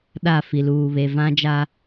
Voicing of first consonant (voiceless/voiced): voiced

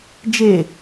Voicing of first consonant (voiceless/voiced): voiced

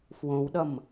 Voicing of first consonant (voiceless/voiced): voiceless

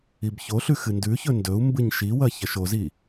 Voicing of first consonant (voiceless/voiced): voiced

